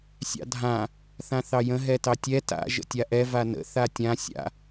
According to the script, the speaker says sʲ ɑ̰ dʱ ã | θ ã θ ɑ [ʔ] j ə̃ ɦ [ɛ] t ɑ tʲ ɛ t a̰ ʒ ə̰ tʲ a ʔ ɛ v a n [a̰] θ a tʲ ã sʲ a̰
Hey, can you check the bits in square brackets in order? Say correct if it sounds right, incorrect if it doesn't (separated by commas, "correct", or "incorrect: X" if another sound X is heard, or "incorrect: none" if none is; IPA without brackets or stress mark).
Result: incorrect: none, correct, incorrect: ə̰